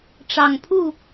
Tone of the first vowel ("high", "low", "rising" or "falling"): low